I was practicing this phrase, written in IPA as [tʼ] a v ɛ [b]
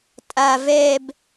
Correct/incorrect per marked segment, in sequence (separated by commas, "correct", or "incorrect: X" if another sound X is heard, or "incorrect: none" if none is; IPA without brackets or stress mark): correct, correct